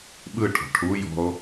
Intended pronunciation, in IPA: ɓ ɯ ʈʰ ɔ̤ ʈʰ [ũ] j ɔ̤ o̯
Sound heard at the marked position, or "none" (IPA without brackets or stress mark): u